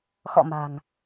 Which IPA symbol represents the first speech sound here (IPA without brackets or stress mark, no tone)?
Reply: x